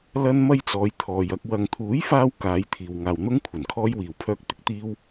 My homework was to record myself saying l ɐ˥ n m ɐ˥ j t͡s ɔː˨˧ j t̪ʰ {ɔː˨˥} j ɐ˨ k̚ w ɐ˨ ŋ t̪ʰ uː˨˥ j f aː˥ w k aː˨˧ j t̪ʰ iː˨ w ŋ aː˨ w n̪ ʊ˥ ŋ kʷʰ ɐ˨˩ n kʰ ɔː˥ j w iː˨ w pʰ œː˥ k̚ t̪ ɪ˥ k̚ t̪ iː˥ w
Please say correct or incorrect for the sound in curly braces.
incorrect